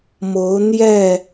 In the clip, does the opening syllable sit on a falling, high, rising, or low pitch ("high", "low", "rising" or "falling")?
rising